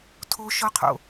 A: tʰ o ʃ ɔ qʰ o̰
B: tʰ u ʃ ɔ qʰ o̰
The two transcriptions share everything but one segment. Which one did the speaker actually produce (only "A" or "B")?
A